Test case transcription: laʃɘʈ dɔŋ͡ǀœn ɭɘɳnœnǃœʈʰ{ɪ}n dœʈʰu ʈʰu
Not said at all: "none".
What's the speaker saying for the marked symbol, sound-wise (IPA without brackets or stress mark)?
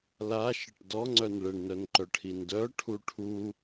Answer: i